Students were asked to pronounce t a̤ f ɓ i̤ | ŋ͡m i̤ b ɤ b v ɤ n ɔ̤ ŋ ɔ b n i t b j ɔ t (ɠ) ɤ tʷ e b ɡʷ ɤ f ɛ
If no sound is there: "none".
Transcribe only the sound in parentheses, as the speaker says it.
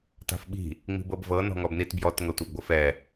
ŋ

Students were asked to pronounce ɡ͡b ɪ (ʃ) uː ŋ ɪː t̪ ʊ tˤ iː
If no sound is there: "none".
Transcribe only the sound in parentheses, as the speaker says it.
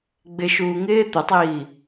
ʃ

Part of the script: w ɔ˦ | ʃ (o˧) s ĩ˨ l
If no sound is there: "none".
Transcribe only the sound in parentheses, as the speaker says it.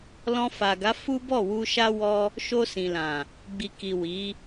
o˧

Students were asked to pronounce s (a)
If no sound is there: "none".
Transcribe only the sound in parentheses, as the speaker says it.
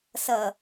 ʌ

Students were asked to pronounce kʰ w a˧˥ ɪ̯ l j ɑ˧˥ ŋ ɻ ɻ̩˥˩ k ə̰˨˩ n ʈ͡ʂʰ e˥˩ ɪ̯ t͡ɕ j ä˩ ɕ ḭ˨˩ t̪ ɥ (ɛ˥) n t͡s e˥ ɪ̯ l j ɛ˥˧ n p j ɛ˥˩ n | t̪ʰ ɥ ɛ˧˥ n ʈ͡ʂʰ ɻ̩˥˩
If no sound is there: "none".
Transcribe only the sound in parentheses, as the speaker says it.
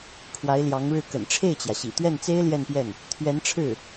ɛ˥˩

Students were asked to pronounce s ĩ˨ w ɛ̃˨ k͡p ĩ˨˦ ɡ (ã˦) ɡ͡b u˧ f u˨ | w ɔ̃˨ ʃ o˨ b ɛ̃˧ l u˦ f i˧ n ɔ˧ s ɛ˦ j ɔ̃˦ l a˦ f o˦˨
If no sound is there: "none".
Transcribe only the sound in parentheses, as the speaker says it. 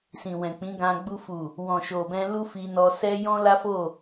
ã˧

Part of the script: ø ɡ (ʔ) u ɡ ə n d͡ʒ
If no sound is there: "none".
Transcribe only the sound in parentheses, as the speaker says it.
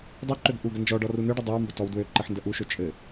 ʔ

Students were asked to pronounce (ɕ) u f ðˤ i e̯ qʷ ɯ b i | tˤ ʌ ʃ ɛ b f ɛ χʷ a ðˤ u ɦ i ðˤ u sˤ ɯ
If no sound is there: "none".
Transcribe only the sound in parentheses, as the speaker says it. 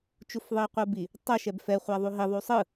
t͡ʃ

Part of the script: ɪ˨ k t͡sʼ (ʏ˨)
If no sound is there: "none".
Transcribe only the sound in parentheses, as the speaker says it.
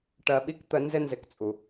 u˨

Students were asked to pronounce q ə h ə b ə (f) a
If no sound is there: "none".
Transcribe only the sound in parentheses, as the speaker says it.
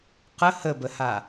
h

